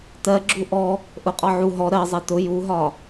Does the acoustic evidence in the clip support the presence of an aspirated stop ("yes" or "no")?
no